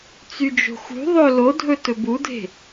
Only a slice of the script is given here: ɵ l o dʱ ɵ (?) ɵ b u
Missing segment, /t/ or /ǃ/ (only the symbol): t